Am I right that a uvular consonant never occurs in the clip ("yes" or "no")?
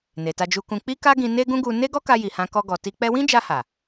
yes